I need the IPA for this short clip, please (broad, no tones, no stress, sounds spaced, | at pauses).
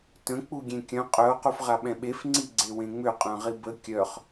t ə̃ k͡p u ɡʲ ẽ kʲ œ̃ qʼ œ o̯ q u f ʁ a ɓ ɛ̃ ɓ e f ŋ͡ǀ i ɡ͡ǀ e w ẽ ŋ͡m ʏ qʼ œ̃ ʁ i b ə kʲ œ χ